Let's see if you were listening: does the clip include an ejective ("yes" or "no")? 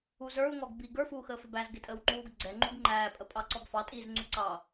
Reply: yes